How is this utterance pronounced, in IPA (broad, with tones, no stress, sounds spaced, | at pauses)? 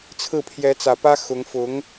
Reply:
t͡sʰ ɹ̩˥˩ pʰ j ɛ˧˥ t͡s ä˨˩ p ä˥ x ʊ˧˥ ŋ f ʊ˧˥ ŋ